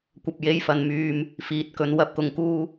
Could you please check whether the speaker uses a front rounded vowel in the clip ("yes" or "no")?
yes